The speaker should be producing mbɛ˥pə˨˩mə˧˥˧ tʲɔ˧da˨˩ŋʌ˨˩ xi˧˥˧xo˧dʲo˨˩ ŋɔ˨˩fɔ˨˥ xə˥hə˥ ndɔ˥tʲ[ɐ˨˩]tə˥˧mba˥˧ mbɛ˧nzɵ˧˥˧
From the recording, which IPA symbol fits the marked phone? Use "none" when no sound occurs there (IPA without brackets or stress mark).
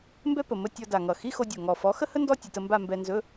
ə˨˩